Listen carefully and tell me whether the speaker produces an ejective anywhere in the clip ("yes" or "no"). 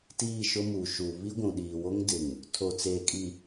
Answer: yes